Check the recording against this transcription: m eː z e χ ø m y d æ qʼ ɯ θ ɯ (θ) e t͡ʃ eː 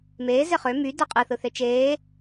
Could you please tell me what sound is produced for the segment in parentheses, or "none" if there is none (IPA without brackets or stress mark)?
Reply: θ